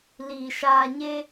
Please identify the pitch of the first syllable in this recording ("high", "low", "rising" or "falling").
low